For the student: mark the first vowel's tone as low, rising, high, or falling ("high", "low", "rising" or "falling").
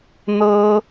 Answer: high